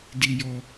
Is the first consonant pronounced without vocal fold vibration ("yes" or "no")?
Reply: no